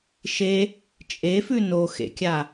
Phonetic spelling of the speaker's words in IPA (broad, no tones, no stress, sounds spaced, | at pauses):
ʃ e | t͡ʃʼ e f ʉ n o x ḛ kʲ a